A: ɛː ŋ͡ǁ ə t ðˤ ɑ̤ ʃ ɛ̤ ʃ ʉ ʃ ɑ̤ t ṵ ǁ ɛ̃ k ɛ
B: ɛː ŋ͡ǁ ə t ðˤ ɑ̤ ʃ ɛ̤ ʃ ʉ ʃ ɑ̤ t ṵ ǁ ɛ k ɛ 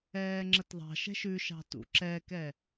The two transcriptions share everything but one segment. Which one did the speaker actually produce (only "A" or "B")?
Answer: B